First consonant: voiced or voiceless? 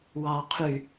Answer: voiced